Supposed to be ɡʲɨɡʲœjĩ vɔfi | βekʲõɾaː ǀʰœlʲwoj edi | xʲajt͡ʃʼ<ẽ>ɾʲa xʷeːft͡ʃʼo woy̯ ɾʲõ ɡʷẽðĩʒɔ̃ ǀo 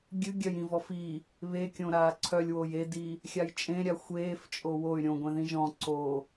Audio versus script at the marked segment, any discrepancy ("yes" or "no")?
no